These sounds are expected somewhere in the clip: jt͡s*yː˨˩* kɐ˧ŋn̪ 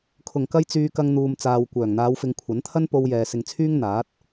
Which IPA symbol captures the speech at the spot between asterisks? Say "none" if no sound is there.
yː˨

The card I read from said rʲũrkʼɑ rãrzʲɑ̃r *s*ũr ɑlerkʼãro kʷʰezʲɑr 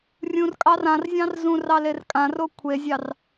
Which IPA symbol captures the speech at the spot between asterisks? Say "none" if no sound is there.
z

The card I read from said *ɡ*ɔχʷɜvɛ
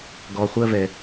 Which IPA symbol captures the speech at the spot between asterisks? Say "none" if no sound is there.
ɡ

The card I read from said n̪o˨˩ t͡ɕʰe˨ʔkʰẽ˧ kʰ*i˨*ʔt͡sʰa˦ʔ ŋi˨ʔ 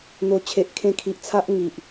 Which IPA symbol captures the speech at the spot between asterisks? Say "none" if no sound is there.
i˨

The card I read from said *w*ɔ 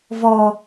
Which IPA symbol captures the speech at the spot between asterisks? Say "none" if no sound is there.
v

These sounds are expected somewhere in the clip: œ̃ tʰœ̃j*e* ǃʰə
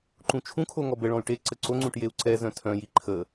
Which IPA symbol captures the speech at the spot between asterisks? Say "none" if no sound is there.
i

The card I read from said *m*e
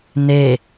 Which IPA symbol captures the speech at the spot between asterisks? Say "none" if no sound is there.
n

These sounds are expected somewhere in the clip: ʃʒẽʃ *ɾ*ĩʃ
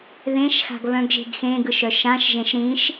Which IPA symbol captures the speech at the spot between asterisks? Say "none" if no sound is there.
ɾ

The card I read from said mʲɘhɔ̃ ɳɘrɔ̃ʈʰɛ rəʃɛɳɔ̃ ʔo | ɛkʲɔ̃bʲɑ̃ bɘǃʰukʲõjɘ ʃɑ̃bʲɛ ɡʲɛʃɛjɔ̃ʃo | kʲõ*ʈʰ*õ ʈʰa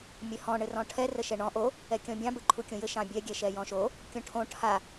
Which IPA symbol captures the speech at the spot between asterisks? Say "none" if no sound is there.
ʈʰ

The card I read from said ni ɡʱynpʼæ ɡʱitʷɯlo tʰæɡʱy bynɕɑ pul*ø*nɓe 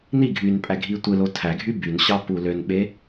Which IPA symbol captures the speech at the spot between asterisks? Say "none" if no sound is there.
ø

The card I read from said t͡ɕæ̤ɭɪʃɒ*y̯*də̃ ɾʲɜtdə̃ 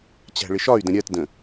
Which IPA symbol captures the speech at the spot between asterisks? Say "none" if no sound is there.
y̯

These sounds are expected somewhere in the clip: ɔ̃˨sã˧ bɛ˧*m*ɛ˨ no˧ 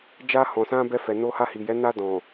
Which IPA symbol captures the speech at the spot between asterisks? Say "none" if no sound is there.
f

